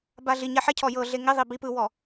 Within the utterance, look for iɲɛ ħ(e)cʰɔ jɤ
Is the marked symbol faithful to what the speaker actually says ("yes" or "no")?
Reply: yes